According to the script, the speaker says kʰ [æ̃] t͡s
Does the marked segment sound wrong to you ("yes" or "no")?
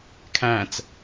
no